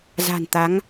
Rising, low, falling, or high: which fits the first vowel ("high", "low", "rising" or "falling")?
low